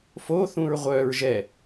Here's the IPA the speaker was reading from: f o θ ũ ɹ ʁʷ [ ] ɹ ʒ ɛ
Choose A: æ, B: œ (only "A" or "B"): B